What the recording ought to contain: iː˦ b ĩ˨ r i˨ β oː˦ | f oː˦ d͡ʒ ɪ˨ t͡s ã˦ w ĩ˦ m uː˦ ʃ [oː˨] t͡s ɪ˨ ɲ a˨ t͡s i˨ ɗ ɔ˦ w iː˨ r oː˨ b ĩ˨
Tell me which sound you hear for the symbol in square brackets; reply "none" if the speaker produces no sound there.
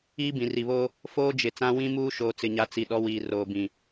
oː˨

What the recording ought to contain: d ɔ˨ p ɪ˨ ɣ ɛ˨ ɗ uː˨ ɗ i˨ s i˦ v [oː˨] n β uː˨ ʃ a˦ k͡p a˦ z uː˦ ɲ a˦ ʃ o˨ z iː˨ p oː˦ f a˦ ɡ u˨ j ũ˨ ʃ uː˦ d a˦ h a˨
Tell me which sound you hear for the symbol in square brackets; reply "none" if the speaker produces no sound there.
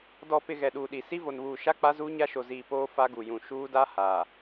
o˨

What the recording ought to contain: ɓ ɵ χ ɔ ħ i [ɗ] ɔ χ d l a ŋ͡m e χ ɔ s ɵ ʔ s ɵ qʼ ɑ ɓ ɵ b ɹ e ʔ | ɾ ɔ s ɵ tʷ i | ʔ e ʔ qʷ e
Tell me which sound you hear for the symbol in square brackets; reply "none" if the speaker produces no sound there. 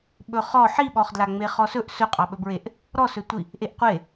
ɓ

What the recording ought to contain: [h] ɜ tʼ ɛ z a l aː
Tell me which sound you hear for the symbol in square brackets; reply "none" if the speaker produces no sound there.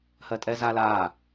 h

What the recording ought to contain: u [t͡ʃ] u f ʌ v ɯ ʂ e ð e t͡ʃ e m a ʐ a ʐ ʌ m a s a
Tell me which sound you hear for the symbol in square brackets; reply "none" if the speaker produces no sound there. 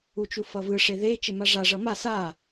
t͡ʃ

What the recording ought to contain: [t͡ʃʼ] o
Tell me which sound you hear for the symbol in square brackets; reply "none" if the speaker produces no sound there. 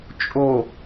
t͡ʃʼ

